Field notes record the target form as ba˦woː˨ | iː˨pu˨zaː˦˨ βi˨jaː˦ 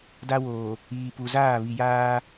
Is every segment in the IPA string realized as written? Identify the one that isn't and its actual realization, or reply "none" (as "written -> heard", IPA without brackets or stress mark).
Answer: b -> d